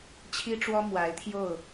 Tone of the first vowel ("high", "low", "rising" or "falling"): high